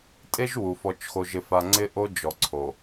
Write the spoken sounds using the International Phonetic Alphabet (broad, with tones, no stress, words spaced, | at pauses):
tʼe˦ʒwu˨ fɔ˨t͡ʃxo˨ʒɪ˨fa˨ ŋ͡ǀɪ˦ʔo˦d͡ʒɔ˨ǀʰo˨